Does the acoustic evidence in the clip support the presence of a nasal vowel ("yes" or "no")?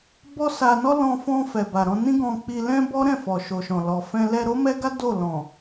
yes